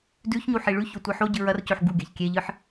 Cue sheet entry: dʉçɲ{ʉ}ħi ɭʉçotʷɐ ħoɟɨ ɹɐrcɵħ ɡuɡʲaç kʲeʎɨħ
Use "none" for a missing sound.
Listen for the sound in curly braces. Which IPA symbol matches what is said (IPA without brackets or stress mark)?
u